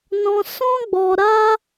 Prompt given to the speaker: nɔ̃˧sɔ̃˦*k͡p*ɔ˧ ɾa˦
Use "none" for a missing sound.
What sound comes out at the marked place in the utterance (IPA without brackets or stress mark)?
ɡ͡b